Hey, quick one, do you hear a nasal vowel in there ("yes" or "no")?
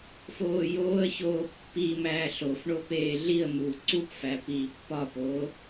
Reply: no